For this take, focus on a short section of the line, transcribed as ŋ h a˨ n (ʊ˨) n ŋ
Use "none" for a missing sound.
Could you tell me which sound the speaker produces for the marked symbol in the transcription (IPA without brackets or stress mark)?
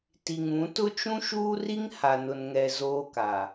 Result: ʊ˨